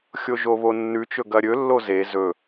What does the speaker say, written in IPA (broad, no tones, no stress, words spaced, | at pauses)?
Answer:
xʲoʒoβonːʉ t͡ʃɵɡɐɾʲɵ lːoze zɵ